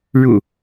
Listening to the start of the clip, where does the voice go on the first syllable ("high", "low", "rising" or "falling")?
low